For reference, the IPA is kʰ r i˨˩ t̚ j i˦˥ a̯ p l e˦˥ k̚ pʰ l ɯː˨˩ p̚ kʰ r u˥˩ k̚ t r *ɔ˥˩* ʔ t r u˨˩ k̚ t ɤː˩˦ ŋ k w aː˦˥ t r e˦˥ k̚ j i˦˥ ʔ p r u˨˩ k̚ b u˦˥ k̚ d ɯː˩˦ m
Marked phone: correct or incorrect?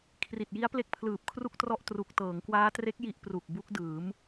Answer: correct